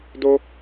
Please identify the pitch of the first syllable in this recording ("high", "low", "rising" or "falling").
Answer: high